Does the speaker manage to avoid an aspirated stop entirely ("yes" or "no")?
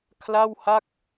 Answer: no